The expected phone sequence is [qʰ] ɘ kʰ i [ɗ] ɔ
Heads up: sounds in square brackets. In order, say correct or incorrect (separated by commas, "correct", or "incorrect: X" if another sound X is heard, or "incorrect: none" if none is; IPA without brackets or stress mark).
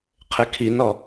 correct, incorrect: n